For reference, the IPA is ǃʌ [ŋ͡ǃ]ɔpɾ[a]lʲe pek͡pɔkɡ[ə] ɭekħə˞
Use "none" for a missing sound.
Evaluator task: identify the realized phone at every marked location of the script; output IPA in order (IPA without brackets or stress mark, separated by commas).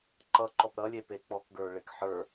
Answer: ǃ, ʌ, ə˞